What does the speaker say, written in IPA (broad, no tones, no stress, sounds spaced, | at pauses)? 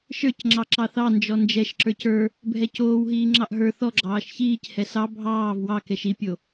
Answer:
ʃ ə˞ c ŋ͡ǁ ɑ ǁ ɑ θ ɑ n d͡ʒ ɔ n d͡ʒ ɛ ʃ ǁ ə˞ c ə˞ | bʱ ɛ c oː w ɦ iː ŋ͡ǁ ɑ ʔ ɦ ə˞ θ ɔ ɡ͡ǁ ɑː ʃ ç iː c h ɛ s ɑ bʱ ɑː v w ɑ k ɛ ʃ i pʲ o